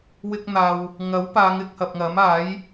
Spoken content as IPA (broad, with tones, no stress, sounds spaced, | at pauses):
w ɪ˧ k̚ n̪ aː˨ w | ŋ ɐ˨˥ w p aː˨˧ ŋ ɪ˧ k̚ h ɐ˨ p̚ ŋ ɐ˨˥ m aː˨˥ j